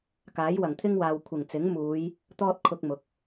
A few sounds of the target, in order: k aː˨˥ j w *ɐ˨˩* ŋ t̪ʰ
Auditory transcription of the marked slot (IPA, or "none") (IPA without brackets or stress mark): ɐ˨˩